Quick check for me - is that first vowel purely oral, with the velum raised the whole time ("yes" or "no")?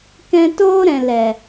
no